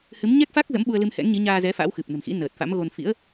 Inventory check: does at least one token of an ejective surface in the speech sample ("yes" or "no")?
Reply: no